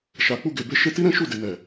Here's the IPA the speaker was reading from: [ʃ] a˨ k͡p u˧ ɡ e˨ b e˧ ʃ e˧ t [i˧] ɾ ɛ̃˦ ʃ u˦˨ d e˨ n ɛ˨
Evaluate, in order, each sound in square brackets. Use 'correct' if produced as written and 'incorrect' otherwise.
correct, incorrect: i˦

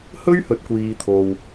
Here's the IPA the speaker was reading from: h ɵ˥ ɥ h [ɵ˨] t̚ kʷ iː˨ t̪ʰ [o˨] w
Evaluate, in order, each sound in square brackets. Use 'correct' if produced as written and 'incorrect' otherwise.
correct, correct

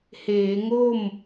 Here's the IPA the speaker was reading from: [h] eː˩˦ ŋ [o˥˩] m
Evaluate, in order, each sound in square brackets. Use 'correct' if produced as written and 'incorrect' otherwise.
correct, correct

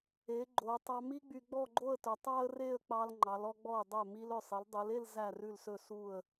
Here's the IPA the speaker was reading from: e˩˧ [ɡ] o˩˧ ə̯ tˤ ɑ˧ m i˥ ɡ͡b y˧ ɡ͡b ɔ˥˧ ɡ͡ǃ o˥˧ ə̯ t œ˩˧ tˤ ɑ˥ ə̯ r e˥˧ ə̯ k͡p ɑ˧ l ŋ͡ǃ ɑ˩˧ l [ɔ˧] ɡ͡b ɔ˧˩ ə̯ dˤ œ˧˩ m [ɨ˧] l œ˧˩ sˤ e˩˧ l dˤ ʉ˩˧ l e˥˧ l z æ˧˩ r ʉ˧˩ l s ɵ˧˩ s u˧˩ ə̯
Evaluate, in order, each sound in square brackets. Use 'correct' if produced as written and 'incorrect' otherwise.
incorrect: ɡ͡ǃ, correct, incorrect: i˧

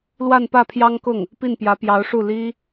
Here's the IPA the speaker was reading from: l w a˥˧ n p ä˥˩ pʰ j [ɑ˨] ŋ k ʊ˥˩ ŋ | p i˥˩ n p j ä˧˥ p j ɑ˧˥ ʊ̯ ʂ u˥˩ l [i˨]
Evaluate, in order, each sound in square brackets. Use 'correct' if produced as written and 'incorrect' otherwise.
incorrect: ɑ˥, incorrect: i˥

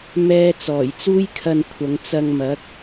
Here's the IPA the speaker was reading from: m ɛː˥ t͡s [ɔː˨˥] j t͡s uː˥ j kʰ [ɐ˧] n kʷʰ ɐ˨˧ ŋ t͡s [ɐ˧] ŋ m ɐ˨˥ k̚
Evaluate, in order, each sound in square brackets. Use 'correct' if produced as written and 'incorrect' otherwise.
incorrect: ɔː˨˩, correct, correct

